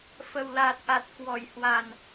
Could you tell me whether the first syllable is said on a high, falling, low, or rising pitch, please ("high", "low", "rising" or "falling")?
low